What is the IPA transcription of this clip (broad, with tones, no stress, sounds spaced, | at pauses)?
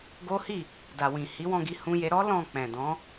ɡ o˦ h i˦˨ | d a˨ w ĩ˨ h i˨˦ w ɔ̃˦˨ ɡ i˨˦ h ũ˧ j e˧ ɾ ɔ˦ l ɔ̃˦˨ k͡p ɛ̃˨ d ɔ̃˨˦